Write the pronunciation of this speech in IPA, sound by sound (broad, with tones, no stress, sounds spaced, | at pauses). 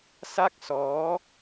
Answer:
s a˥˩ k̚ s ɔː˦˥